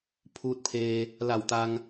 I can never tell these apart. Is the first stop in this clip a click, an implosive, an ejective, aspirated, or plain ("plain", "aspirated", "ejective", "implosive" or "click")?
aspirated